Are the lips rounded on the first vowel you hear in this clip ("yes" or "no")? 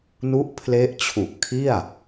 yes